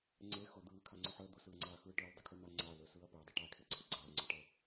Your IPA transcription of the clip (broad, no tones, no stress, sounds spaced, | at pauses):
ŋ͡ǀ e x ʊ d̪ ɯː kʰ a ŋ͡ǀ ʊ ħ əː d̪ ʊ s ɯː ŋ͡ǀ aː x ɯː ʈ ə˞ l dˤ ə kʰ ɯ n̪ a ŋ͡ǀ a l ə˞ s ɯː ɐ̯ p əː dˤ ə ʈ a kʰ e ǀʰ ə ɡ͡ǀ aː ŋ͡ǀ a ʈ əː